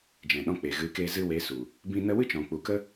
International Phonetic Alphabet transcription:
d͡ʒɛ̃˨ ɗɔ̃˧k͡pe˨ɣɨ˨˦keː˧ zɨ˧we˨˦su˨ | bĩ˦ nə˦ wɨ˦t͡ʃɔ̃˨k͡pu˨kə˦

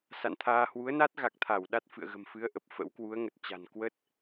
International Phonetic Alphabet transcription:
sa̰˧˨nt̪ʰaː˧ hwu˨˦ə̯na˦˥t̚ ɣa˨˩k̚t̪ʰa˧˩w ɗa˦˥t̚fɨ̰˧˨ə̯ ɣə̤˨˩mfɨ˨˦ə̯ ʔə˨˩p̚fə̰˧˥w kwu˨˦ə̯ŋə˨˩t̚t͡ɕa̤˨˩n kwə˦˥t̚

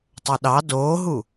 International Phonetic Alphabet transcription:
tˤɵɗɑ doːɦu

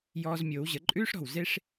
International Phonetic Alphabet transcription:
jɔː˧z mʲoː˩˧wʑə˩˧ǃʼʉː˥ʂ ɾɔ̤˧˩wze˥ʂ

